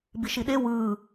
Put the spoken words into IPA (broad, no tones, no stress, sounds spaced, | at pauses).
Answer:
b i ʃ i ɗ e w ɯː